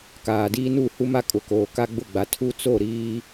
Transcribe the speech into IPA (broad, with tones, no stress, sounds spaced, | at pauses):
k aː˨ d iː˦ n u˦˨ h u˦ m a˦ kʼ ʊ˨ k oː˨ k a˦ ɡ͡b ʊ˦˨ ɡ͡b a˨ tʰ u˦ t͡s o˦˨ ɾ iː˦